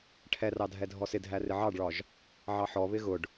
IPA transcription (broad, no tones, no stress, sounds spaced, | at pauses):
ʈʰ ɛ r ɑ dʱ ɛ dʱ ɔ s ɪ dʱ æ r ɪ ʕ ɑ ɖ ɭ ɒ ʒ | ʕ ɑ ħ ɔ β ɪ ɣ ʊ ɖ